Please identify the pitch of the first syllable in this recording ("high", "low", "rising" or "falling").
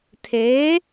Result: rising